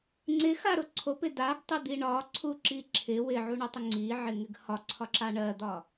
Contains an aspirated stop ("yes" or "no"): yes